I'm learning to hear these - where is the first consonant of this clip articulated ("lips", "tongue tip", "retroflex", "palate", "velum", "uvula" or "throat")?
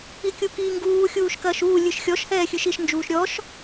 velum